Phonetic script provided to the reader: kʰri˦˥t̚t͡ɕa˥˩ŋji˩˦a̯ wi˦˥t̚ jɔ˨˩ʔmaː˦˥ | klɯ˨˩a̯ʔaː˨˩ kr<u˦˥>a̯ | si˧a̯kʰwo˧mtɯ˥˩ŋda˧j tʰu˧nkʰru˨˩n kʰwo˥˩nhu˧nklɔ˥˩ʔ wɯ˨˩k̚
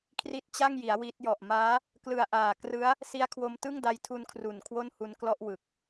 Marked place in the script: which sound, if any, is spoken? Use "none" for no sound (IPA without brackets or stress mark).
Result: ɯ˦˥